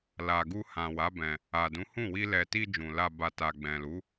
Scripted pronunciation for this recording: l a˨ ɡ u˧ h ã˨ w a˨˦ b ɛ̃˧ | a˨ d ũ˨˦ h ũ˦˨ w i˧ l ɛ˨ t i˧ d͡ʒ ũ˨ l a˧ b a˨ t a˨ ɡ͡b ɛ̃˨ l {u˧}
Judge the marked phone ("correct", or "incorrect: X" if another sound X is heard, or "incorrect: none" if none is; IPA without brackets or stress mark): incorrect: u˨˦